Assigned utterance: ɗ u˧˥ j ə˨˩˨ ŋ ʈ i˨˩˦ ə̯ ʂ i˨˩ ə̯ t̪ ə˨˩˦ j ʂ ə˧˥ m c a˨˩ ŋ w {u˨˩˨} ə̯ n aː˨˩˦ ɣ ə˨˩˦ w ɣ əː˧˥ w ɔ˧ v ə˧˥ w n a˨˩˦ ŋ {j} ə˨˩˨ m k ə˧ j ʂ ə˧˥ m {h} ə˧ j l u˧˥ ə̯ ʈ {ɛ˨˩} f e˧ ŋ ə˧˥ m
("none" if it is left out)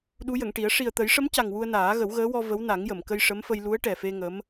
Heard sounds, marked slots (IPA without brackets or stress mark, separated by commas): u˧, j, f, ɛ˨˩